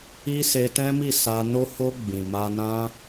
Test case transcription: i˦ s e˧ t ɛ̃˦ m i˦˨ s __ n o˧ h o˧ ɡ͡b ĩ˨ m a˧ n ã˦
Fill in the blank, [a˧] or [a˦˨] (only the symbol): a˧